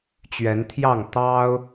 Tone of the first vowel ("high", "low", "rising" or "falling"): rising